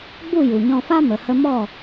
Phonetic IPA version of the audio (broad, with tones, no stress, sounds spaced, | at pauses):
ɡ͡b u˦˨ j u˨ ɲ ɔ̃˧ f a˦ m ə˨ h ə˧ m ɔ˦˨